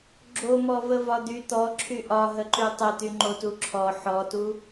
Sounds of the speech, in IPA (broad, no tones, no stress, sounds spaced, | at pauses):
ɡ͡ǁ o m ɔ v ə v ɒ d̪ y t̪ ɔ ǁʰ y ʔ ɒ ɦ ə ǃ y tˤ ə t̪ y ŋ͡ǃ o t u ǁʰ ɔ ħ ɔ t u